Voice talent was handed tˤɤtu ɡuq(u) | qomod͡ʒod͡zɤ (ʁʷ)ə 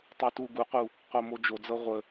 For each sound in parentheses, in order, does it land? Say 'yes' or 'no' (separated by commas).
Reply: yes, yes